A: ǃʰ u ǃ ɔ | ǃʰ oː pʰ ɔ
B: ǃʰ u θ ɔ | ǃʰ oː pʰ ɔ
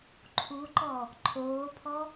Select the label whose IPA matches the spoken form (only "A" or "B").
A